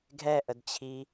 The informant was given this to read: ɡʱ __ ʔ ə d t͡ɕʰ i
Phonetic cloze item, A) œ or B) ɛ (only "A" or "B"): B